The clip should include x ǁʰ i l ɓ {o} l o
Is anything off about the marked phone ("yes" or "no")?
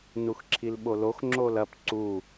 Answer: no